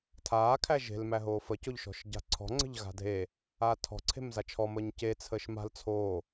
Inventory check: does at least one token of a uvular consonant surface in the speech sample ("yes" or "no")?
no